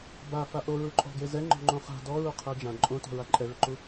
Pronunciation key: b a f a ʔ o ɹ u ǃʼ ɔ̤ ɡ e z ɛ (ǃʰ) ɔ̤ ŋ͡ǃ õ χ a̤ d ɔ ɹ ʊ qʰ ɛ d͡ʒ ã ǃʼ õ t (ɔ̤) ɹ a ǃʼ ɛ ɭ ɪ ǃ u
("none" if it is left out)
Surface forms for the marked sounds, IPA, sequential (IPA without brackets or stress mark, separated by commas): ŋ͡ǃ, ɔ̤